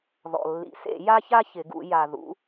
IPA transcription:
ð ɔ̰˩ lː ḭ˩ s ḛ˧˩˧ j a˥ ç a˥ ç ɪ˩˧ ɡ ṵ˩˧ j a˩ ð ṵ˩˧

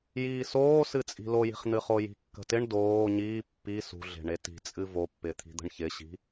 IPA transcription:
j iː s oː s ɨ t͡sʼ i̤ l o j i̤ χ n̪ ɨ χ o j i̤ kː ə̤ t ɪ ɳ d oː ɲ iː pː i s ṳ ɮ e̤ ɳ e t i̤ t͡sʼ ɨ v o pː ɪ t̪ʰ i̤ d̪ ə̤ ɳ ç ɪ ɕ i̤

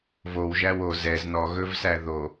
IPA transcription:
v o w ʒ æ w o z ɛ z n ɔ ɣ ɵ v s æ ð o

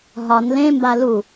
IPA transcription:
ɦ ɒ n l ẽ m b a l u

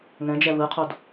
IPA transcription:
ŋ ɛ̃ d͡ʒ ɛ β ɯ qʰ o d

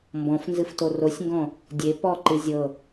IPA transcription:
m b ɔ̃ f n z ɨ f t o r o sʲ ŋ ɡ ɔ̃ | dʲ e p ɔ ǃ ɨ zʲ ɤ

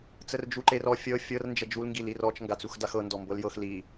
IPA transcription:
t͡s ə r d͡ʒ u ǃ e r ɔ fʲ ɤ fʲ ɤ r n d͡ʒ ə d͡ʒ u l ŋ ɡ i l i r ɔ t͡ʃ ŋ ɡ a t͡s u x d a x ɤ n d ɔ m b ɤ l j ɤ x l i

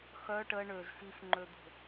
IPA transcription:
x œ ʈ ə ɳ ø z x i x ŋ͡ǃ ø d̪ o̤

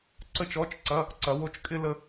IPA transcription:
ǀ ə˥˧ t͡ʃ ɔ˧˥˧ t͡ʃ ǀ ɐ˧˥˧ | ǀ ɐ˨˥ w o˨˥ t͡ʃ kʼ ɪ˥ l ə˥

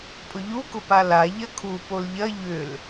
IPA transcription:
pʼ ʊ ʎ u k ʊ p a l a ʎ ɐ kʰ u p o l ʎ ɐ ʎ ʏ l

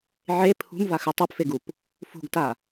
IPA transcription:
ʕ e pʰ ṳ m v a x ɨ tˤ u p f e ɡ u p | f ṳ ɡ t a

